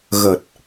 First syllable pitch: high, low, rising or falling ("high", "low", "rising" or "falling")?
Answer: low